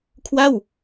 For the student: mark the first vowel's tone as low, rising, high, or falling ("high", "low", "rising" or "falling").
falling